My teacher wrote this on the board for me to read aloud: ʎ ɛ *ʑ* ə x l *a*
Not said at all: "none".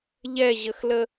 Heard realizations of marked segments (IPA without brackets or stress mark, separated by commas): ʑ, ə